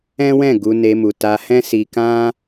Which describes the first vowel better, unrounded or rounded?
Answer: unrounded